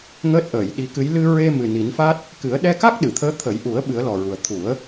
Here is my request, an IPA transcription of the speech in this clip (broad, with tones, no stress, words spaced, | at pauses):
ŋəː˦˥t̚ʔəː˨˩˨jɗi˧˥kɨ˧˥j lɨ˧ɹe˧mɨ˨˩ ni˨˩˦nfa˦˥t̚ | kɨ˨˩˦ə̯ ɗɛ˧ka˦˥k̚ ɗɨ˨˩˨t̪ʰəː˧˥ t̪ʰə˨˩˦jʔu˨˩˦ə̯ ɓɨ˨˩˦ə̯lɔ˨˩ɹu˨˩ə̯ t̪ʰu˨˩˦ə̯